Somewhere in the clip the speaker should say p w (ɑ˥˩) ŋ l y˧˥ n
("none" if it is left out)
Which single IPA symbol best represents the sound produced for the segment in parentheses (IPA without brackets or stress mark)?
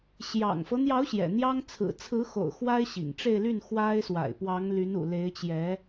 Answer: ɑ˧˥